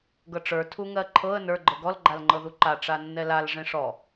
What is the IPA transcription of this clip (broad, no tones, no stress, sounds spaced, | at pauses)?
ɡ ɤ ʈ͡ʂ ə˞ tʰ u ŋ ɜ ǃʰ ɤ ə̯ n ə˞ ɡ͡ǃ ɤ ɡ ɔ l ɡ͡ǃ a l ŋ͡ǃ ɤ ð u ǃ a ʈ͡ʂ a nː ɛ l a l ʐ ẽ ʂ ɔ